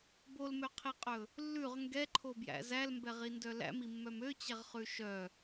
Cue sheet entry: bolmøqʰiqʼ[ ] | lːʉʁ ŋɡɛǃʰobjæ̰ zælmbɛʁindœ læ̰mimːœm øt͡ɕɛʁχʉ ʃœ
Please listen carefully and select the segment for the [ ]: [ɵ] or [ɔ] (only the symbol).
ɵ